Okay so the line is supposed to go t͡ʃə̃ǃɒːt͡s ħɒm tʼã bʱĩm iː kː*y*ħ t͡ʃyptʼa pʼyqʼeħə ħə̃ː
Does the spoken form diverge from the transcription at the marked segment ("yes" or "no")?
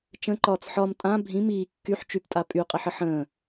no